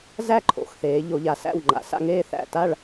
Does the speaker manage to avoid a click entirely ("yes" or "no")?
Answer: no